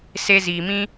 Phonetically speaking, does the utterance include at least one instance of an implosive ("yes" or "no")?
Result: no